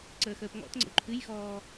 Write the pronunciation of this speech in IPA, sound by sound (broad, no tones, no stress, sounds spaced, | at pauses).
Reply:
ǀ əː x əː p ŋ ɔ̰ t ŋ͡ǀ ə̰ w ǃʰ ɨ j x ɔː